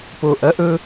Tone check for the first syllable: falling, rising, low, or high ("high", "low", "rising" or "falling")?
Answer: low